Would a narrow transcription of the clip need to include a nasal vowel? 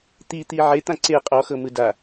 yes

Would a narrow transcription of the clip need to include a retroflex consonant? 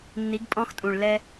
yes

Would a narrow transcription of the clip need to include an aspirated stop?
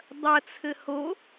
yes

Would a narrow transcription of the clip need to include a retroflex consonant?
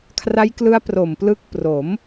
no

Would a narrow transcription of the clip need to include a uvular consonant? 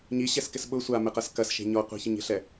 yes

